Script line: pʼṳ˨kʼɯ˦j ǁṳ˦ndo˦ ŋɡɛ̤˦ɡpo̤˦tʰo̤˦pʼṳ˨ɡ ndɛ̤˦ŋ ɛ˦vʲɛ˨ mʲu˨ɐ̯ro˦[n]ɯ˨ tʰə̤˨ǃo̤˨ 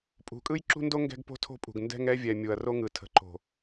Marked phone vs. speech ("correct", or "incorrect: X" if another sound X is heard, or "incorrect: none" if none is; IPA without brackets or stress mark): incorrect: ŋ